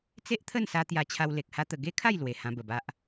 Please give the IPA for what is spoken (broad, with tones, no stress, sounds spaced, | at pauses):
t͡s e˦ ʔ t̪ʰ ə˥˧ n s a˧ t̪ j a˧ t͡ɕʰ a˧ w l e˨ k̚ h a˦ t̪ ə˧ ɡ e˦ kʰ a˥˧ j l w e˨˩ h ã˧ b ə˨˩ b a˦ ʔ